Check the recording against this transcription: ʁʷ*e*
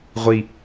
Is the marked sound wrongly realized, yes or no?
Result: yes